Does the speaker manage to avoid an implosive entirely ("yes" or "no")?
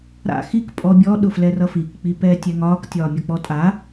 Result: no